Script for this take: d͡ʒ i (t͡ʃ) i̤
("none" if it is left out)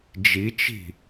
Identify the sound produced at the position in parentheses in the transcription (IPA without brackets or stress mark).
t͡ʃ